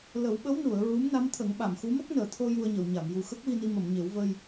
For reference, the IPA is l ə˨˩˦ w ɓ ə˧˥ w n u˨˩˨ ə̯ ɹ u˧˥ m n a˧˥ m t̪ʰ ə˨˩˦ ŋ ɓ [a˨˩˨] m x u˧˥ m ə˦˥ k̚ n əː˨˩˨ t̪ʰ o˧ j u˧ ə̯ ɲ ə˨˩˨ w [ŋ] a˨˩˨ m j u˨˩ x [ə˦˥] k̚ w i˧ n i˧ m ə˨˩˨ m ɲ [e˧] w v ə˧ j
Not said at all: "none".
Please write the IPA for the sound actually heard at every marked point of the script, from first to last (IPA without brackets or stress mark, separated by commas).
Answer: a˨˩˨, ɲ, ə˦˥, e˨˩˦